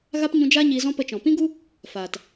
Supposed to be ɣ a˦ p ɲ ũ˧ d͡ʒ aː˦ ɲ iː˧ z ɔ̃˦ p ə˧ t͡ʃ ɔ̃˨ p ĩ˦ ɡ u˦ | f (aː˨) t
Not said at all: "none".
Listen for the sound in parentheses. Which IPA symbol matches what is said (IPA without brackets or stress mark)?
aː˨